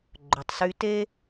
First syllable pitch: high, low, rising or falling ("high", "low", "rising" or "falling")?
low